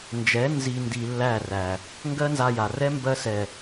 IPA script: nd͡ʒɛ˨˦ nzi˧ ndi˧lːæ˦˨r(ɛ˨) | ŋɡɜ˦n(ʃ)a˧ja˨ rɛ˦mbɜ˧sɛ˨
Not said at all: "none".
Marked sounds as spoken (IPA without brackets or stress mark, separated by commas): æ˨, z